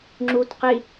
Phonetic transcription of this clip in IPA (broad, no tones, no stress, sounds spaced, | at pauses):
ŋ͡ǁ u t q i